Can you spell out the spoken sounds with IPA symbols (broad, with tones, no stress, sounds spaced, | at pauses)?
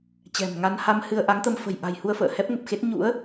t͡ɕ ɛ̤˨˩ m ŋ a˧ n h a˧ m h ɨ˧ ə̯ ʔ a˨˦ ŋ t̪ ə˧ m f ə̤˨˩ j ʔ a̤˨˩ j h u˧ ə̯ f ə̰ː˧˨ h ɛ˦˥ p̚ ŋ ə˨˩ p̚ x e˦˥ t̚ ɲ ṵ˧˥ ə̯